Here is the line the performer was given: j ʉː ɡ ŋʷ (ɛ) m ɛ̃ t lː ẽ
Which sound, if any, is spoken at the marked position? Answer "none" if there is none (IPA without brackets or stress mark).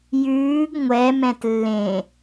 ɛ